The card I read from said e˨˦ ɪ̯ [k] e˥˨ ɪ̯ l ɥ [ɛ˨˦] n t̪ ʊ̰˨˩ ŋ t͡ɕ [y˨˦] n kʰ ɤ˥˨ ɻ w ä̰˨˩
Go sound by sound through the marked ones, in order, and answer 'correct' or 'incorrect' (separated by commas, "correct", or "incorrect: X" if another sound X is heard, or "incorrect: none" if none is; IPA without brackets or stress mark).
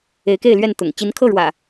correct, incorrect: ɛ˥˨, incorrect: i˨˦